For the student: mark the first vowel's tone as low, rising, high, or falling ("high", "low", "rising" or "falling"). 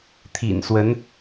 low